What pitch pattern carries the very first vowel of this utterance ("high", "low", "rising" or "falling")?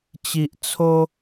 low